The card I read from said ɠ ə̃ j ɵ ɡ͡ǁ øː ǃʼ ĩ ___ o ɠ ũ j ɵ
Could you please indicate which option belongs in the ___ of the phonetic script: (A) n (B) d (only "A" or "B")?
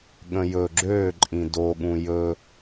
B